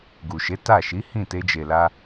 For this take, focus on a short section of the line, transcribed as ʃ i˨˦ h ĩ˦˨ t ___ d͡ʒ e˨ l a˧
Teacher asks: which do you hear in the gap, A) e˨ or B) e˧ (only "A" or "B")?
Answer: B